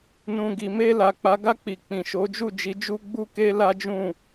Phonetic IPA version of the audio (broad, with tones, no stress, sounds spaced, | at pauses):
n ũ˨ ɡ i˨ m e˧ l a˨ k͡p a˨˦ ɡ a˦˨ k͡p i˨ k͡p ĩ˨ ʃ o˨˦ d͡ʒ u˦˨ d͡ʒ i˨˦ d͡ʒ u˦ ɡ͡b u˦ k e˦ l a˦ d͡ʒ ũ˦˨